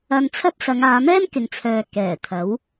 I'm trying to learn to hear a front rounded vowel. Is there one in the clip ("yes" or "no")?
yes